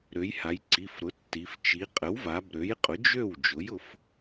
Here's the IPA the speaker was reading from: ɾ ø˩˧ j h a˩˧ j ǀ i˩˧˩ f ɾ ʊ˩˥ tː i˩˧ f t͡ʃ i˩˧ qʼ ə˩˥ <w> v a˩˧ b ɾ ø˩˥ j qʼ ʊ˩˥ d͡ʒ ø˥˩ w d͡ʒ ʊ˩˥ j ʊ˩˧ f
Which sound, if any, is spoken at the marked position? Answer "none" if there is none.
w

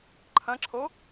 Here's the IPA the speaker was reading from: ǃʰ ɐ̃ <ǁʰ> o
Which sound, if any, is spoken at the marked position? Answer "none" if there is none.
ǁʰ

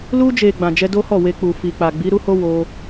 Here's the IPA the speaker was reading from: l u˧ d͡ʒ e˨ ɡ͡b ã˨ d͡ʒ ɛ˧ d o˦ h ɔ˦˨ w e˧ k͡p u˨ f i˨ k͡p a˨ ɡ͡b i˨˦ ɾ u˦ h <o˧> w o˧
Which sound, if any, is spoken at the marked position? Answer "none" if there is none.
o˦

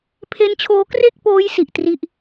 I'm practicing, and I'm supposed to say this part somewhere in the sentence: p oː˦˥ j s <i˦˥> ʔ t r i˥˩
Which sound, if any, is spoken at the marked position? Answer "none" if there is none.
i˨˩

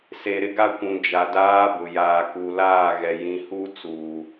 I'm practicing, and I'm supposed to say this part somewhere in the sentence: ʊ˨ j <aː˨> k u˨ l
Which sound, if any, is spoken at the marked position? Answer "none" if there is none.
aː˨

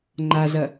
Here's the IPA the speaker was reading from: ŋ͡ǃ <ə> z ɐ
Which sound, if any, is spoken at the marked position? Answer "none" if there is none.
a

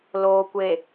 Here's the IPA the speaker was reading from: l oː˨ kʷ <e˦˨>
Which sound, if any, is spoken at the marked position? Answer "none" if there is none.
e˨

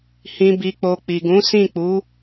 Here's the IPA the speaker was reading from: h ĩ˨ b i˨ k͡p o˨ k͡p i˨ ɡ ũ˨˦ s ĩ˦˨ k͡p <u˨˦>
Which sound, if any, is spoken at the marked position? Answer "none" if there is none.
u˨˦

